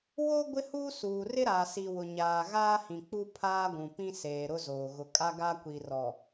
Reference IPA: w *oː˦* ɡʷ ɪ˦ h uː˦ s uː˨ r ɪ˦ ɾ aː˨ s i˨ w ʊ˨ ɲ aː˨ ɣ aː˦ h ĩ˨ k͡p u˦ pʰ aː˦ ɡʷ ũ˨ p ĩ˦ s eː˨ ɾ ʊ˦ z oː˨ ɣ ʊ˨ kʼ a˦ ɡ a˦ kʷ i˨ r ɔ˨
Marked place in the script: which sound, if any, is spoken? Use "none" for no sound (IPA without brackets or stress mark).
o˦